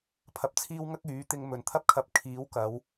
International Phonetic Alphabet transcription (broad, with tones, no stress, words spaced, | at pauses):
pʰɐ˧p̚t͡sʰiː˥wŋɐ˥k̚ yː˨˥t̪ɪ˧ŋ mɵ˨nt̪ʰɐ˥p̚kʰɐ˧p̚ kʰiː˨˥wkɐ˨˧w